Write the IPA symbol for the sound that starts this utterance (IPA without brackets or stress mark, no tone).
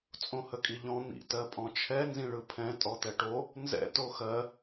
t͡sʼ